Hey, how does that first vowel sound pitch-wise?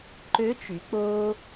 rising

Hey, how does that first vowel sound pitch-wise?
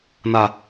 low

